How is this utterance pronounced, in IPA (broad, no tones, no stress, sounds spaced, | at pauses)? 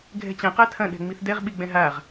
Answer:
ɡʱ ɛ̤ t͡ɕ ɐ̃ q a tʰ ɐ̃ ɗ ɛ̤ ŋ͡m i θ d ɛ ʁ ɓ i ɡ͡b ɛ̃ ɦ a ʁ